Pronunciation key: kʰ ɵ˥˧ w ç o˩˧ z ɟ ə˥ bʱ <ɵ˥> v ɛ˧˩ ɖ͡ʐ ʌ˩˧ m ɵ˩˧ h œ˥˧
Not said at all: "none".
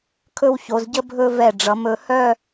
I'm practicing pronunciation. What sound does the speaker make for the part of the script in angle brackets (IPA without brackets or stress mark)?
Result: ɵ˥˧